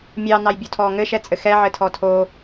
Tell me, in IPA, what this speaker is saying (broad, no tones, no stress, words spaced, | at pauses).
mʲɑnɑjbʲotʰɔ ŋɘʃɛt͡sʼɘ xɛʕɘtʰɔ tʰo